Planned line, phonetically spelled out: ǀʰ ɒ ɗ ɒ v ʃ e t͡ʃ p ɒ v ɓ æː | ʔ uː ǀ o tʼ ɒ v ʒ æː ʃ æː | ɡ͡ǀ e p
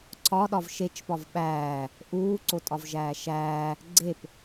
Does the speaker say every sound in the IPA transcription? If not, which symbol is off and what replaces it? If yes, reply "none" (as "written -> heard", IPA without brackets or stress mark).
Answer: none